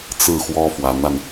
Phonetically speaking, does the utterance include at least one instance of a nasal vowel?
no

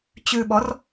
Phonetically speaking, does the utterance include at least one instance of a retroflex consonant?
no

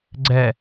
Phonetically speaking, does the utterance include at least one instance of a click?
yes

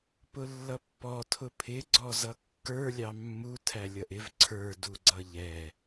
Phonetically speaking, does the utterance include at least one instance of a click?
yes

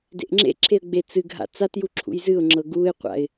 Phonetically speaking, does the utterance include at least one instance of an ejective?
no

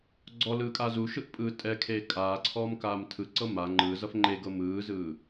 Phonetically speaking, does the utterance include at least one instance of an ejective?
yes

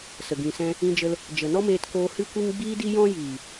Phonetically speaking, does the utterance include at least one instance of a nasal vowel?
yes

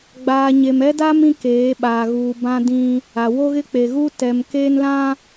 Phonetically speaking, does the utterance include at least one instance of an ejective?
no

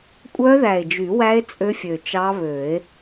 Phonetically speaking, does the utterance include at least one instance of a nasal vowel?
no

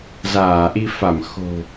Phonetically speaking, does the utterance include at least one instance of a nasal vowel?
no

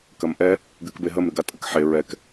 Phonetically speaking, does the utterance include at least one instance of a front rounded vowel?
no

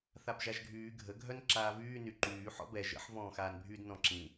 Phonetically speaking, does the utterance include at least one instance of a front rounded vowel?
yes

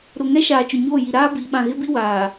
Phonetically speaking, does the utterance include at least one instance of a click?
no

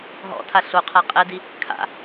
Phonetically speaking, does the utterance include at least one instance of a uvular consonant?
yes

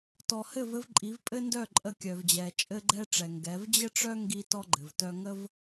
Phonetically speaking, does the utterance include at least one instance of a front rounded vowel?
yes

